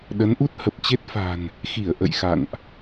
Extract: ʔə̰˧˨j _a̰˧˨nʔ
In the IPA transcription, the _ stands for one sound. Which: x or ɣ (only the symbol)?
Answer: x